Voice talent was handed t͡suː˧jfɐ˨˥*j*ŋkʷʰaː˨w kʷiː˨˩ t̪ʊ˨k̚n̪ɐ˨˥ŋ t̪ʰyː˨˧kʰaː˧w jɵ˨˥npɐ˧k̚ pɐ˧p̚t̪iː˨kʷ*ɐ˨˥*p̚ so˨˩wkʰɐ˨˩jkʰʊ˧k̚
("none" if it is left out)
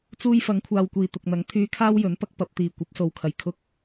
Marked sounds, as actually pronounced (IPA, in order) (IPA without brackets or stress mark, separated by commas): none, ɐ˨˥